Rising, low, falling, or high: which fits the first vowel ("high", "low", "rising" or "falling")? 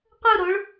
falling